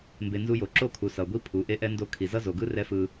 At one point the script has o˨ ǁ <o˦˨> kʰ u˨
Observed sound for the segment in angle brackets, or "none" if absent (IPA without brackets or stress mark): o˦˨